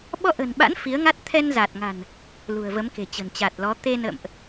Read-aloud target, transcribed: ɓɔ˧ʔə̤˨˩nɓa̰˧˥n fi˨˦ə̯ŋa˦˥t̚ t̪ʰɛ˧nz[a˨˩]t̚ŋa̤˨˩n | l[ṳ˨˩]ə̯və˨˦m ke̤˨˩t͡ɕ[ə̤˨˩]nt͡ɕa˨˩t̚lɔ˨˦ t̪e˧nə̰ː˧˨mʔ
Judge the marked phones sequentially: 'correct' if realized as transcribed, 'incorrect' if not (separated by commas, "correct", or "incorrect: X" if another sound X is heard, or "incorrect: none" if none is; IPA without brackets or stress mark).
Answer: correct, correct, correct